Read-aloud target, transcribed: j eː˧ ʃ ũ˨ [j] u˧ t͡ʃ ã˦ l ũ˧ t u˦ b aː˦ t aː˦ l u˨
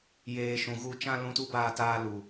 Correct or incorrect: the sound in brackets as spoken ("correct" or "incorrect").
incorrect